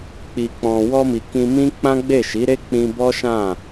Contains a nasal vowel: yes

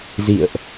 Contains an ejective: no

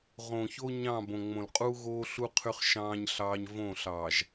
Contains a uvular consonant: yes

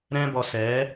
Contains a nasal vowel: yes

